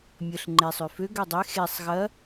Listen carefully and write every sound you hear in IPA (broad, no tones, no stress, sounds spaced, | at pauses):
mʲ ə ɬ ŋ͡ǃ e sˤ ʏ f ø ɡ ø dˤ e x e sˤ ɣ ɐ